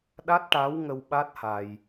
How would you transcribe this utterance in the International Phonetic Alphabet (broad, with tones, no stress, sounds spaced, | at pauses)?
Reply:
ɗ a˦˥ t̚ ʈ a˧˥ w ŋ ə˧ w ɓ a˦˥ t̚ h a˧ j